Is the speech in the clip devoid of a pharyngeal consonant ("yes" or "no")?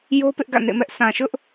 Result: yes